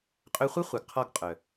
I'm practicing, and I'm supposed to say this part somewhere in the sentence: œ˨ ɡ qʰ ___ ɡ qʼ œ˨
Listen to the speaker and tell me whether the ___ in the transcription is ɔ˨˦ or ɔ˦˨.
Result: ɔ˦˨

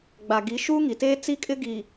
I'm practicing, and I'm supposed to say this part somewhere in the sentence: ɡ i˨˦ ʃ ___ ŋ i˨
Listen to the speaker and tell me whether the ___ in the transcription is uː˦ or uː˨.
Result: uː˦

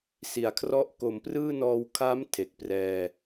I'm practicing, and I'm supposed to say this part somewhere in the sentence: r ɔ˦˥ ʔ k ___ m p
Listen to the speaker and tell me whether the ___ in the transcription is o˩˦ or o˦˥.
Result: o˩˦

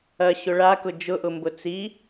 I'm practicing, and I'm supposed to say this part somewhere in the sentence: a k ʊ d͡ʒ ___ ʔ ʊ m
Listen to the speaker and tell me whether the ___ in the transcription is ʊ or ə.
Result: ʊ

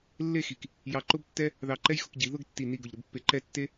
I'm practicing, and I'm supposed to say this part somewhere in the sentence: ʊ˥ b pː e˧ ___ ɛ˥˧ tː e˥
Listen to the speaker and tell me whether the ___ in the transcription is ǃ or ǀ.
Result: ǃ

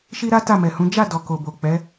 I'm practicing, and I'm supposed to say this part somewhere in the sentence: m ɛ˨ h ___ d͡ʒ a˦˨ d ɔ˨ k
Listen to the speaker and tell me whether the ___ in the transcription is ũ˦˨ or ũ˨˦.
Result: ũ˨˦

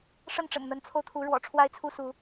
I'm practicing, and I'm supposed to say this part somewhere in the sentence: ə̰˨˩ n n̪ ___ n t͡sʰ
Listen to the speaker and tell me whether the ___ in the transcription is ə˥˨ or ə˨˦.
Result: ə˨˦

